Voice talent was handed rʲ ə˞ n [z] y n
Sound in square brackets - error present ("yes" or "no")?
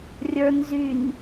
no